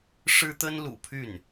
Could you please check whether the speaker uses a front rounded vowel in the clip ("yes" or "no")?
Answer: yes